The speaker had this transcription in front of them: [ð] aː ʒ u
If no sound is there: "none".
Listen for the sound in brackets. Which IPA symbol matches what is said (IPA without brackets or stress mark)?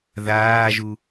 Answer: ð